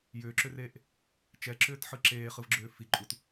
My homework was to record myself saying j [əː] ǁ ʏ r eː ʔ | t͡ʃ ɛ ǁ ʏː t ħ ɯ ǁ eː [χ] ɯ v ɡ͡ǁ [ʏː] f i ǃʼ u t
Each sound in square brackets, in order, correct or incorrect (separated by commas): incorrect, correct, correct